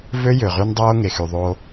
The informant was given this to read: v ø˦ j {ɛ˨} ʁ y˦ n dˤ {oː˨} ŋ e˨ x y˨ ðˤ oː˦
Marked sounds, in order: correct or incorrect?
incorrect: ø˨, incorrect: oː˦

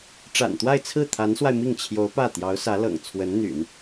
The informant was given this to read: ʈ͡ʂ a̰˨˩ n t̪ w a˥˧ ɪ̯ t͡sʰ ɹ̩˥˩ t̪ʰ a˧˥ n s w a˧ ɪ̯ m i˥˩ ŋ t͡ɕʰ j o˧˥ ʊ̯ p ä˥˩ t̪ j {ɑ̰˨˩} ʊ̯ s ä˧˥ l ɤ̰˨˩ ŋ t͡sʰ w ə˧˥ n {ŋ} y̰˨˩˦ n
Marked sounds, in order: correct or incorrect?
incorrect: ɑ˧˥, incorrect: n̪

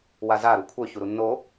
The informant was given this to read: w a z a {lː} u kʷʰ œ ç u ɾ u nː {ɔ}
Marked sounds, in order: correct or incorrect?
incorrect: ɾ, incorrect: o

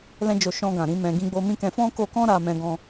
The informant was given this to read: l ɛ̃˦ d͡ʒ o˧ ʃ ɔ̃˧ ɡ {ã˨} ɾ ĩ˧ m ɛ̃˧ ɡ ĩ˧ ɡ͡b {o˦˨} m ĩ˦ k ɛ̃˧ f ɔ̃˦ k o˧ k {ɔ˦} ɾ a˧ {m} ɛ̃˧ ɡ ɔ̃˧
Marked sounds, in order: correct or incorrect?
correct, incorrect: o˧, incorrect: ɔ̃˦, correct

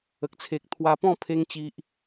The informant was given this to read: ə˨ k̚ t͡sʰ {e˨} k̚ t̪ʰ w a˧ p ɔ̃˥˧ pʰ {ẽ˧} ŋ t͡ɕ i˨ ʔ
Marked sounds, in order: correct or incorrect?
correct, incorrect: e˧

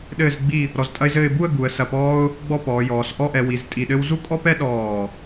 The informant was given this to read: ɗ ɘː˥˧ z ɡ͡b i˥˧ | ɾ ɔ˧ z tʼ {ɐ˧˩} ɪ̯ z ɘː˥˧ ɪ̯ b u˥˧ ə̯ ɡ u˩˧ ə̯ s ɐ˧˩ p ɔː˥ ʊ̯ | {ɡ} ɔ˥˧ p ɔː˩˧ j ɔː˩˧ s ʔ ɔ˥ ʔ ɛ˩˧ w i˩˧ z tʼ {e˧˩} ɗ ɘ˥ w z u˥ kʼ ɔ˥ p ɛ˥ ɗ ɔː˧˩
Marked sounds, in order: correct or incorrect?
incorrect: ɐ˥, incorrect: ɡ͡b, incorrect: i˧˩

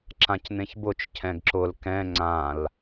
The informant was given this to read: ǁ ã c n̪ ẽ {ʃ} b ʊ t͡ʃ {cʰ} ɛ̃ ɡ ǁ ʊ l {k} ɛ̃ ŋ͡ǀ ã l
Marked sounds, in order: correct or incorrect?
incorrect: ç, correct, correct

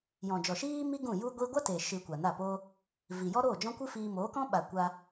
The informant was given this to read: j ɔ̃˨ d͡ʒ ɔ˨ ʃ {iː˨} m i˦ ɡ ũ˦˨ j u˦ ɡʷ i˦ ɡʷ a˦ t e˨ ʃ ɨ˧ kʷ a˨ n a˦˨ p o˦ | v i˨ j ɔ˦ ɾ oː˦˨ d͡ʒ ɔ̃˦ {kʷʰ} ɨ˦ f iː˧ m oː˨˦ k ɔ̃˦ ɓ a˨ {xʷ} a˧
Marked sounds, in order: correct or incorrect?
incorrect: iː˦, incorrect: kʷ, incorrect: kʷ

